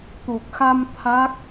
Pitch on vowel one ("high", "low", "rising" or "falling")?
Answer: low